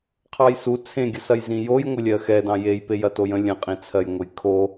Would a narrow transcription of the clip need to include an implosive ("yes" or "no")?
no